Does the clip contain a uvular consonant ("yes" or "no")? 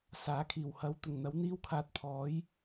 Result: no